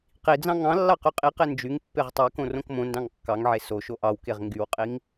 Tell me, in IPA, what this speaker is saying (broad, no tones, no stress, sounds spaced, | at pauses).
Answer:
q i d͡z ɑ̃ ŋ ɑ̃ lː ɑ q ø qʼ i q e n d͡ʒ y ŋ pː e ʁ tˤ e k õ r õ k m õ n d ɑ̃ ŋ kː ɑ ŋ ʕ e s o ʃ o ʔ ɑ w k e ʁ ŋ ɡ y w qʼ i ŋ